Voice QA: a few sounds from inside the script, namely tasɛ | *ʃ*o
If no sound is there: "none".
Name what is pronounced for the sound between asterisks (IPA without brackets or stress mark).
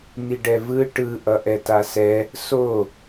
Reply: s